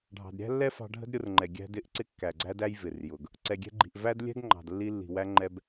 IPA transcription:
ɖʱ ɑ̤˩ d ɾʲ æ̤˥ lː ɛ˥ f ɑ̤˧ ɖʱ ə̤˥ d ɾʲ ʊ˧ r ŋ͡ǃ ɛ˩ ɡʲ æ̤˧ d ɪ˧ ʔ ǀ ɪ˧ kː æ˩ ɡ͡ǀ æ˧ d æ˧ j v ɪ˩ r j ʊ˩ ɡ | ǀ ɛ˩ ɡʲ ɛ̤˧ ɡ͡ǃ i̤˩ ʔ v æ˥ d lʲ ɛ̤˥ ɡ ŋ͡ǃ ɑ̤˩ d lː i˧ lː i̤˩ w æ˧ ŋ͡ǃ ɛ˧ b

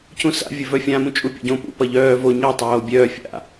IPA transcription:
c ũ s a̰ vʲ ɘ v œ fʲ ã m ũ t͡ʃʼ u pʲ o̰ ɟ õ p ṵ p ʌ ʎ œː v o ɲ ʌ tˤ oː bʲ œː fʲ a̰

